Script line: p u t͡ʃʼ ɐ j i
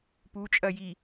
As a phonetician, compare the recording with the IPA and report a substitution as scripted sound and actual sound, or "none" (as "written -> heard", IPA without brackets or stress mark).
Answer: none